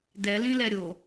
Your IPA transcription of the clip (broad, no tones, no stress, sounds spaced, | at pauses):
d ɛ l ĩ l ɛ ɾʲ o